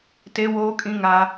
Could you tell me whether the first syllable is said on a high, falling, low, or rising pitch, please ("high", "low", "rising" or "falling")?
high